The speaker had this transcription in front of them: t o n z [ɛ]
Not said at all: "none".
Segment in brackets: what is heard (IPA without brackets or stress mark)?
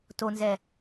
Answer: ɛ